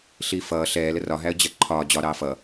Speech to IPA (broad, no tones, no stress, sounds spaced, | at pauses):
ɬ iː f ʌː ɬ ɛː l ə r ɒ ɦ æ ə̯ d͡ʑ ɜ ǃʰ ɒː d͡ʑ ɒ ɾ ɑː f ʌ